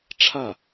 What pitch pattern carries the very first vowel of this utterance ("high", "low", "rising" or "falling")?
falling